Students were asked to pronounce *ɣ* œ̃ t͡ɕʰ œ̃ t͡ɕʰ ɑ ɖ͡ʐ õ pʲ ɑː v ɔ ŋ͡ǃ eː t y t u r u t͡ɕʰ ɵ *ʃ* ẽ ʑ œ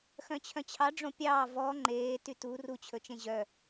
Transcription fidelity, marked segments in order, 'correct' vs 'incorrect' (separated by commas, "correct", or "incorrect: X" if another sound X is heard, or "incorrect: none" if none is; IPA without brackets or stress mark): incorrect: x, incorrect: t͡ʃ